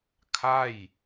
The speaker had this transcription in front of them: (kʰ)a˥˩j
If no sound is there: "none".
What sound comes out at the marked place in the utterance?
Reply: kʰ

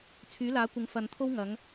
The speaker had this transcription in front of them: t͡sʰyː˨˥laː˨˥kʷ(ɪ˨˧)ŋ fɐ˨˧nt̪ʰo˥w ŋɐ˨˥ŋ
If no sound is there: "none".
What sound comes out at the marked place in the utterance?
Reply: ɪ˨˧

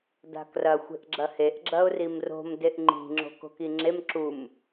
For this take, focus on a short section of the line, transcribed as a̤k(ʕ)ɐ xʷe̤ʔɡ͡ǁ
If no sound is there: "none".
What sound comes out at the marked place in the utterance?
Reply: r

